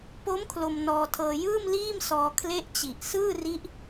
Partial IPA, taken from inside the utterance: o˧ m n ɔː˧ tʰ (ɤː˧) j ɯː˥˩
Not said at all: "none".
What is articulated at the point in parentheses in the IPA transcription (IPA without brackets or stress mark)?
ɤː˧